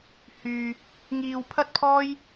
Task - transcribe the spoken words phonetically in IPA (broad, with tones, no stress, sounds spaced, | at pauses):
h yː˧ | ŋ iː˧ w pʰ ɐ˥ t̚ pʰ ɔː˥ j